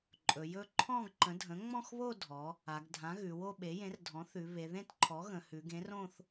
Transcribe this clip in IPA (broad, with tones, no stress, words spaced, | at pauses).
ǃʼɵ˩˧jɵ˥˧ ǃʰɔ̃˥˧ɡǃə̃˩˥ dʱə̃˩˥ŋ͡mɔ̃˥˧xβo˥˧dʱɔ˩˧ | a˩˧ɡdʱã˩˥ ɣʉ˩˧wo˥˧ɓe˩˥ jẽ˩˥rdʱɔ̃˩˥θʉ˩˧ βe˩˧ðẽ˥˧t ǃʰɔ˩˥ɣə̃˩˧ hʉ˩˧ɡẽ˩˥rõ˥˧θ